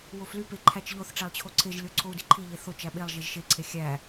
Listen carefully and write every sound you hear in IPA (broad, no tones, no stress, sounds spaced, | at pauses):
w o f l y p e ǃʰ æ t͡ʃ ʎ o θ ʈ͡ʂ æ lˠ t͡ɕʰ o ǀʰ e ʒ lʲ o ǀʰ o u̯ d i ǃʰ i ʎ e θ o t͡ʃ æ ɓ e lˠ ʒ e ʒ ʃ e ǀʰ e xʲ æ